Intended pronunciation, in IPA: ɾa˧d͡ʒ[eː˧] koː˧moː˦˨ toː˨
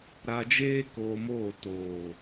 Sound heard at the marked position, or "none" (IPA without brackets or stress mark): eː˦